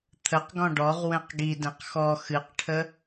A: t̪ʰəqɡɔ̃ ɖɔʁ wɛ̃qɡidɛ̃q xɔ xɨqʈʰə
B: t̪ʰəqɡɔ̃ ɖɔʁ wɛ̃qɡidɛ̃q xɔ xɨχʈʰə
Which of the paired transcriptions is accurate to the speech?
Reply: A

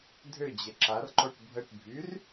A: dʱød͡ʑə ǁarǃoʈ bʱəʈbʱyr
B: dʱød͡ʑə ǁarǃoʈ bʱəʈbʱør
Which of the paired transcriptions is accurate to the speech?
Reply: A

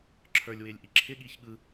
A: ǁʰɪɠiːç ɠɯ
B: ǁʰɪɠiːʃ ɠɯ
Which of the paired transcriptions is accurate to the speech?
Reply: A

